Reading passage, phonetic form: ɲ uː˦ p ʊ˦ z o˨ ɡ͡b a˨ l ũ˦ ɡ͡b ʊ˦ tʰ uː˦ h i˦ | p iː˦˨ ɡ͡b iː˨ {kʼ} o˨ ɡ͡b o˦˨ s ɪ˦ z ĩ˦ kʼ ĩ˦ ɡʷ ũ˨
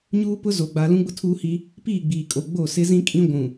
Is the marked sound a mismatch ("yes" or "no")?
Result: no